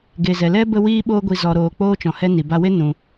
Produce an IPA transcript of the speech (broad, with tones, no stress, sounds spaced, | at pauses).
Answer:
ɡ e˨ z ɛ˨ l ɛ˦ b ə˦ w iː˦ ɓ oː˦ ɡʷ i˧ z ɔ˧ ɾ oː˧ k͡p oː˦ t͡ʃ ɔ̃˨ h ɛ˦ n i˨ b a˧ w e˦ n ũ˧